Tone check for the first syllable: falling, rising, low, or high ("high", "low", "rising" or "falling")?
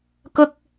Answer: high